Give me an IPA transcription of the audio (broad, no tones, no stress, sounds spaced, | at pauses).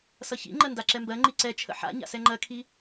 s ʌ ç ḭ ŋ͡ǃ ɜ n d a ǁ ɛ m b ɜ ŋ͡ǃ i ǀ ɛ t͡ʃʰ ə̰ ħ a̰ ɲ a̰ s ɛ ŋ͡ǃ ɜ kʰ i